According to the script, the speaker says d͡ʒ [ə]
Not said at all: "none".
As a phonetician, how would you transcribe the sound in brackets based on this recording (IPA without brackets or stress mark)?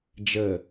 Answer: ə